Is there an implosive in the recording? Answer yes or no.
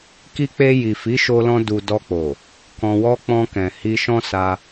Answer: no